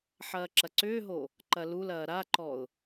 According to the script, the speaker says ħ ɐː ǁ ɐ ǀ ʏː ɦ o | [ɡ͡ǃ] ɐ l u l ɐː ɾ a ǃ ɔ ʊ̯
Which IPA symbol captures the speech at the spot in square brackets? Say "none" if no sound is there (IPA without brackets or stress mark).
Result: ǃ